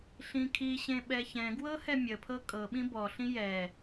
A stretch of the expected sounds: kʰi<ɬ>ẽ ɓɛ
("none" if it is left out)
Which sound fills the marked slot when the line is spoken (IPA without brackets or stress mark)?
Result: ɕ